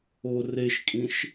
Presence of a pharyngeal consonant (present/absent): absent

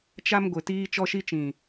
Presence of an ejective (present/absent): absent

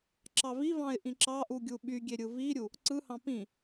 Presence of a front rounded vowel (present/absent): present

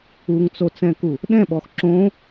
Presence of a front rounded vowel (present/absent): absent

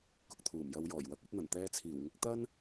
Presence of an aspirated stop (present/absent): present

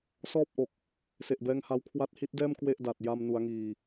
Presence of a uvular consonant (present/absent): absent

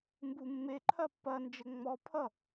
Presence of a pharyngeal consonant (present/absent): absent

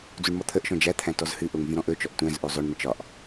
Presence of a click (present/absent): absent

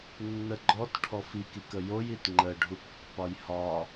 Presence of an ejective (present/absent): absent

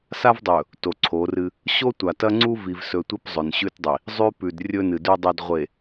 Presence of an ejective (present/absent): absent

